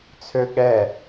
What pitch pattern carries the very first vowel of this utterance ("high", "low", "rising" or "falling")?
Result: high